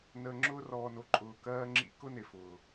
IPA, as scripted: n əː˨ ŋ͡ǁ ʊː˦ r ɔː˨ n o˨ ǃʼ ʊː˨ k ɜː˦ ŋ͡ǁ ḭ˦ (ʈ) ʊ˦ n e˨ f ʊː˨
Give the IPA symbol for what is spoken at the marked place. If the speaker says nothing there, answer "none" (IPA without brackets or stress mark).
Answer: k